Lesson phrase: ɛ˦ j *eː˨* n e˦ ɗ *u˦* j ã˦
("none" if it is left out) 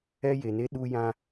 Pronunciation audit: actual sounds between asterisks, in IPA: e˨, u˦

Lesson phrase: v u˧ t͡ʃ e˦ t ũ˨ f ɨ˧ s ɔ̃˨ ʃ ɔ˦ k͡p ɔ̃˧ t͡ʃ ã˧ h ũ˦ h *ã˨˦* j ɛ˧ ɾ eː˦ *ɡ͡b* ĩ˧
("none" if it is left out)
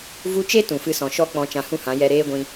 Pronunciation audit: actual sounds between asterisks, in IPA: ã˨˦, ɡʷ

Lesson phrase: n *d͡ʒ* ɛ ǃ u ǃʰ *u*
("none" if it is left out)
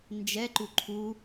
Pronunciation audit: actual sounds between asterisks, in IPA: d͡ʒ, u

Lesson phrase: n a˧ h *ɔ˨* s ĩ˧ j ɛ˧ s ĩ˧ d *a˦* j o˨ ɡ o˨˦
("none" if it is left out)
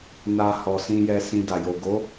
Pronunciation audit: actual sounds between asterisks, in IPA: ɔ˨, a˨

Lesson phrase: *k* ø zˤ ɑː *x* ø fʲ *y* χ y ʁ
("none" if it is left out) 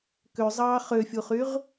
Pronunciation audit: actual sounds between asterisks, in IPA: k, χ, u

